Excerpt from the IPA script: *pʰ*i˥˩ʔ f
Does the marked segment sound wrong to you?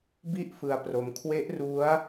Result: yes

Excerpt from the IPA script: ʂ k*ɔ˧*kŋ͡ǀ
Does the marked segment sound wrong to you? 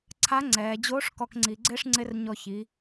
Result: no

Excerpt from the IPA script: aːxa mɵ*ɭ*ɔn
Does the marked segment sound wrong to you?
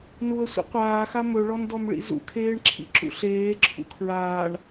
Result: no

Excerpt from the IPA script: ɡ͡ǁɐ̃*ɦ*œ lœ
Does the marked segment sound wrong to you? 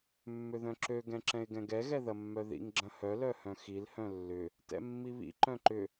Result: yes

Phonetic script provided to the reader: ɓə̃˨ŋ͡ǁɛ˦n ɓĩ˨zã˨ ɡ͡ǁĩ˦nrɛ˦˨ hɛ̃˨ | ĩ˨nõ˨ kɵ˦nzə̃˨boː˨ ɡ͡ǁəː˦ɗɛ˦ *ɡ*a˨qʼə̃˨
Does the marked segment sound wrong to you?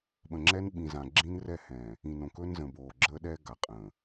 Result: no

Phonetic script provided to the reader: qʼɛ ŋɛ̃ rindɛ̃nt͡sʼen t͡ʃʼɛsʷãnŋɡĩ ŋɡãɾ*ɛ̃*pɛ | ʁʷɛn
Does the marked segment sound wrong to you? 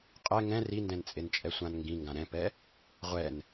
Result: no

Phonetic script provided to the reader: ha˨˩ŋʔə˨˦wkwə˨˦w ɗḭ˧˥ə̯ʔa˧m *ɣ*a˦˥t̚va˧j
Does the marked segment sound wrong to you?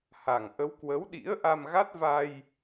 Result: no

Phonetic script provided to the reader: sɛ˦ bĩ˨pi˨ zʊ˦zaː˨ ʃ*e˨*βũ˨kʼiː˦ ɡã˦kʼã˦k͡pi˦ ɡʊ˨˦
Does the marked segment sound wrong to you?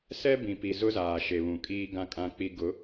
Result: no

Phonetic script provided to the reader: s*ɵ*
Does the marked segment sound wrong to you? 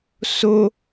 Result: yes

